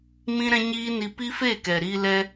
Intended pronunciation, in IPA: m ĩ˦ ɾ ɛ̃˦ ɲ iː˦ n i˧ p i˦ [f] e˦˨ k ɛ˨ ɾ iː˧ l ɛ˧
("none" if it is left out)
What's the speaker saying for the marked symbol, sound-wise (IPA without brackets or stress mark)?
f